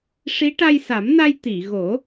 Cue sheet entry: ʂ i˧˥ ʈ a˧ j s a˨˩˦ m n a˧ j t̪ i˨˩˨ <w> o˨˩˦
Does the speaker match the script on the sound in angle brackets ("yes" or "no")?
no